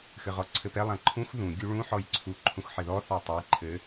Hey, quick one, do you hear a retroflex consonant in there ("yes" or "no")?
yes